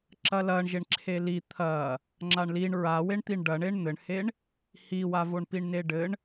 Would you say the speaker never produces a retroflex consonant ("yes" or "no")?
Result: no